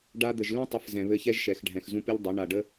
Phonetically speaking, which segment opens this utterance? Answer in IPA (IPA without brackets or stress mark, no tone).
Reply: ɖ